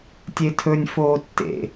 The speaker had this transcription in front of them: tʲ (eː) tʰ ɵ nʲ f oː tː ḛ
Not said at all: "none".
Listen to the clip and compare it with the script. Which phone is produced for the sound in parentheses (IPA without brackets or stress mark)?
e